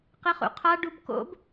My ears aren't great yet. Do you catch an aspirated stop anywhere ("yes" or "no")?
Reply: yes